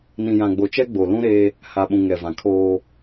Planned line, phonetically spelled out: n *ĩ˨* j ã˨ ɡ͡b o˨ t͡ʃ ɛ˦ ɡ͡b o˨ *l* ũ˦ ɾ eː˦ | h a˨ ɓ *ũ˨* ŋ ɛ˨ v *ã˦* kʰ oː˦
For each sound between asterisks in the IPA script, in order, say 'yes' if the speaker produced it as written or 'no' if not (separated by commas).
yes, yes, yes, no